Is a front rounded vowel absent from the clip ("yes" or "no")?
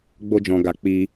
yes